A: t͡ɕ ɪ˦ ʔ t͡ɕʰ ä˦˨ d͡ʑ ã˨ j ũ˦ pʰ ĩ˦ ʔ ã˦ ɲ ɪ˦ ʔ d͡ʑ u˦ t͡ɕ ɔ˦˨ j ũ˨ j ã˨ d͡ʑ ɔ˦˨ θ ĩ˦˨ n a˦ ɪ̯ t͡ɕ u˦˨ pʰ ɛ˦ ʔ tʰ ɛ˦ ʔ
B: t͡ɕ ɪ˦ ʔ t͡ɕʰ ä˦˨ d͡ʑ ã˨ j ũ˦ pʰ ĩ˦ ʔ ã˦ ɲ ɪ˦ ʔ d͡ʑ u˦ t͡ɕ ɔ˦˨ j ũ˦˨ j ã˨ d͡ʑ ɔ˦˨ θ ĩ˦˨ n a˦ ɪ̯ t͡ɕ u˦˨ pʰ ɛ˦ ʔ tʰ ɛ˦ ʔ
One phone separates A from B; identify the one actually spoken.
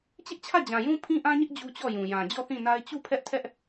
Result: A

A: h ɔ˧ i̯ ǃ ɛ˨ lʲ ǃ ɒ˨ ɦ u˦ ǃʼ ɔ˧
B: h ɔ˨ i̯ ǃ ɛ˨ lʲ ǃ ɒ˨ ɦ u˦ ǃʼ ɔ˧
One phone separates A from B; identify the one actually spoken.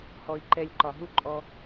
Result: B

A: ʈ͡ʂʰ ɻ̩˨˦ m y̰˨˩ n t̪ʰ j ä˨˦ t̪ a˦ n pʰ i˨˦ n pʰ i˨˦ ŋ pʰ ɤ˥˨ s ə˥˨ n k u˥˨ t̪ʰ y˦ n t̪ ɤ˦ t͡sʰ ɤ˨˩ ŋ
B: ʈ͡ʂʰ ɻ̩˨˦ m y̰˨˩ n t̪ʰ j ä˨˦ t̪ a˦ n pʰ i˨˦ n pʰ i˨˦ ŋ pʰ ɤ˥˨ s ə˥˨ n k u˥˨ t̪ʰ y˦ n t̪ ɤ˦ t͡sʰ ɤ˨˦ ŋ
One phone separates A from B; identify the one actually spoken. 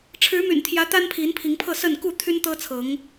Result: B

